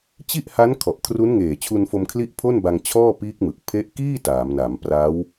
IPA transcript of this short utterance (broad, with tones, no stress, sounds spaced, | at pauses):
t͡ɕ i˥˩ ʔ h a˦˥ n kʰ ɔ˨˩ ʔ kʰ r u˦˥ n ŋ eː˨˩ t͡ɕʰ u˧ n f o˧ m kʰ l i˥˩ ʔ pʰ o˥˩ n b a˧ ŋ t͡ɕʰ ɔː˥˩ p iː˦˥ k̚ m ɯ˨˩ k̚ pʰ e˦˥ ʔ k iː˥˩ t aː˩˦ m n a˩˦ m p r a˦˥ w